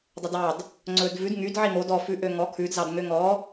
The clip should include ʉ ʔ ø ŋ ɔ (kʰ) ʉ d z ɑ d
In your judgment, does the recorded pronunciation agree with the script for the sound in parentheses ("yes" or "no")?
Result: yes